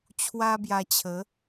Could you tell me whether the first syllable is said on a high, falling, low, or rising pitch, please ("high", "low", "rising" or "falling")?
high